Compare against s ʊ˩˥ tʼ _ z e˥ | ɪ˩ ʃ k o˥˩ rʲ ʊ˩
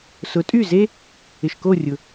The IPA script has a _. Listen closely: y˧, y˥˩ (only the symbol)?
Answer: y˥˩